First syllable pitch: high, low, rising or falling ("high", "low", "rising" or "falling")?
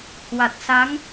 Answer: low